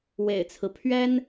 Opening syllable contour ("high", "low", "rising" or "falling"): low